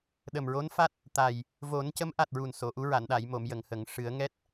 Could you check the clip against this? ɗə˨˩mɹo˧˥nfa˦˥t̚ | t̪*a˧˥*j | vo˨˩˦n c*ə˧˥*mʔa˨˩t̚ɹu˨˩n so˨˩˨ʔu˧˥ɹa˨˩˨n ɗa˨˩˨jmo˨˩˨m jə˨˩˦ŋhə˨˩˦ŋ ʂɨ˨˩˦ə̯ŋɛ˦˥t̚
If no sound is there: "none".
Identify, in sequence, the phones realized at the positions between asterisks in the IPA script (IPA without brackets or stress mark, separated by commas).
a˨˩, ə˧˥